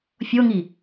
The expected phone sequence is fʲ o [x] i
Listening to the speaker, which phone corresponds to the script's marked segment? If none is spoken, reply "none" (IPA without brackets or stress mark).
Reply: ŋ